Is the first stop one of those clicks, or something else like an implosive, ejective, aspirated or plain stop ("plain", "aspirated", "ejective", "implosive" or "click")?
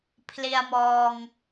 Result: aspirated